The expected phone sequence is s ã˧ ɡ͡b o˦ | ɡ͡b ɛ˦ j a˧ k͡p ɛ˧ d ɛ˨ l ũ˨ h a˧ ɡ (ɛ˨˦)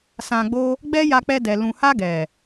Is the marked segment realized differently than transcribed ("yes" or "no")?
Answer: yes